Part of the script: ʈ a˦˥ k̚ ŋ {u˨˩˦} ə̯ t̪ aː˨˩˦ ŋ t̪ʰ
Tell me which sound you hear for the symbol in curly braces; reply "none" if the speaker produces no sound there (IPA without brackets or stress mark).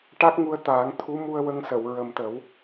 u˧